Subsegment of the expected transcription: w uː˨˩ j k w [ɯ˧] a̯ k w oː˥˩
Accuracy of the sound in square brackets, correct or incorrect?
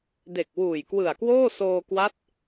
incorrect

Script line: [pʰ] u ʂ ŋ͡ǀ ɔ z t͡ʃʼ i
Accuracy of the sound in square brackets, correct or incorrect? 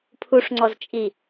correct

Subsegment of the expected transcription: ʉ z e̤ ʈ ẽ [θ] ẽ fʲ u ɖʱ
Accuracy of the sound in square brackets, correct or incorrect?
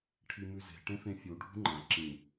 incorrect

